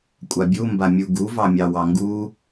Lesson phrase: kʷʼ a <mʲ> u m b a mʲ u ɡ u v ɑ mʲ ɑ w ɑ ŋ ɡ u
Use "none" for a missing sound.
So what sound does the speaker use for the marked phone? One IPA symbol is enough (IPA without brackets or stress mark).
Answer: bʲ